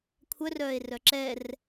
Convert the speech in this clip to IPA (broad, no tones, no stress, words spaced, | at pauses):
kʷʰœrœːe̯ rœǁɛr